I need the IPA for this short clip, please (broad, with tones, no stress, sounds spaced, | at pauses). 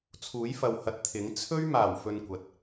t͡sʰ uː˨˥ j f ɐ˨ w h ɐ˨ t̚ t̪ʰ ɪ˨˥ ŋ t͡sʰ ɵ˥ ɥ m aː˨˩ w f ɵ˧ n kʷ ɐ˨ t̚